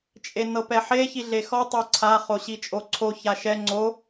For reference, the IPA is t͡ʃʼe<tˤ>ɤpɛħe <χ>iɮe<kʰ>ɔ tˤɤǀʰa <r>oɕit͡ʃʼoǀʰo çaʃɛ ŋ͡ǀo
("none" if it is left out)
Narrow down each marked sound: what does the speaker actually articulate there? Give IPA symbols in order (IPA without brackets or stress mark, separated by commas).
n, ç, x, χ